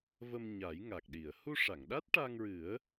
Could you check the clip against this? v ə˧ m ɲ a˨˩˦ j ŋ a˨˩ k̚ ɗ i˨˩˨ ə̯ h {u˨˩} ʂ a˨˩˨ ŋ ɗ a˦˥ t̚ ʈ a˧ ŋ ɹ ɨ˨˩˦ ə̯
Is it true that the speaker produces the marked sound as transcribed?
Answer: no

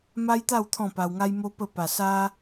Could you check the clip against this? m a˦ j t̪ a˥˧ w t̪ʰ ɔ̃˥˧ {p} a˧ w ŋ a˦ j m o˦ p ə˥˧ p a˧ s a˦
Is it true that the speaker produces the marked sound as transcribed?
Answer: yes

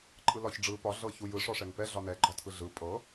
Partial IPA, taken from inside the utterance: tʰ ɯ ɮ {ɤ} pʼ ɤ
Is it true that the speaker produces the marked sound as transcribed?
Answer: no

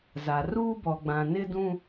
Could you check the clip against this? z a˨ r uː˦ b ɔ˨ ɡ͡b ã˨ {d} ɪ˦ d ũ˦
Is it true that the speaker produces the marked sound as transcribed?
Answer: no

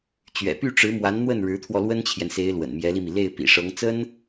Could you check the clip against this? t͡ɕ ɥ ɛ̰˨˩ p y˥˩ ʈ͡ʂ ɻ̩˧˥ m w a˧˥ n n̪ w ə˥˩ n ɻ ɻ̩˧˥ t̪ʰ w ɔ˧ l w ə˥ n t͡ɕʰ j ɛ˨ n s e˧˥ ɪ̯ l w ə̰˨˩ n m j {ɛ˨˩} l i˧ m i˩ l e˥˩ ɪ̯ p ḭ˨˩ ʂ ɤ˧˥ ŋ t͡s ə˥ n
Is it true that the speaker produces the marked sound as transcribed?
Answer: no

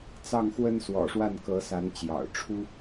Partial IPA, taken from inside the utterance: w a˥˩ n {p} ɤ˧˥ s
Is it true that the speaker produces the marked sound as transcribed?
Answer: no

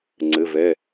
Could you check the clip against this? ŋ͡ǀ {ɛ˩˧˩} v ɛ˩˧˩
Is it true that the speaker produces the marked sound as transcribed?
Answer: no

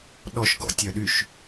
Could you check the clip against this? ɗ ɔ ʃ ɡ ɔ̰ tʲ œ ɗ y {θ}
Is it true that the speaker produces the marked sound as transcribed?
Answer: no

